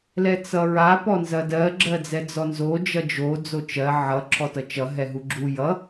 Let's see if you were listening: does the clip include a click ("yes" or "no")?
yes